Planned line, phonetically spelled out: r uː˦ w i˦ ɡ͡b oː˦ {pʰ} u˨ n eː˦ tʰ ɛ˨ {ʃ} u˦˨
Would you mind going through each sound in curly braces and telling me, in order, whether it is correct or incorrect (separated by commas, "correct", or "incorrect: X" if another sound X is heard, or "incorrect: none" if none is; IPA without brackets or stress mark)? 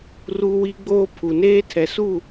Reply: correct, incorrect: s